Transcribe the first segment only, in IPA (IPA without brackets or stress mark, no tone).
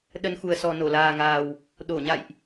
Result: ɗ